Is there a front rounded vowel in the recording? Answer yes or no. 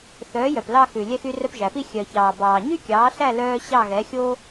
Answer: yes